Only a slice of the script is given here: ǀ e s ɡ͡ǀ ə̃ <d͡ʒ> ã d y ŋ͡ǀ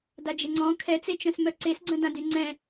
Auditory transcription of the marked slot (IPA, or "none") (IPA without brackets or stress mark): d